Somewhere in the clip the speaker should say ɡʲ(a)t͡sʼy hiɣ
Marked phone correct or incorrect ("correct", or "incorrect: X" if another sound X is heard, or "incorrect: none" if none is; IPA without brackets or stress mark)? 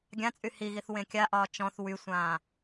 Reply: incorrect: ã